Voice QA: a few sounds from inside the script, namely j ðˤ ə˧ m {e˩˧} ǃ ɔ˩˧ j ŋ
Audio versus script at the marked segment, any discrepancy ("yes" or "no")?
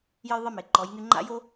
yes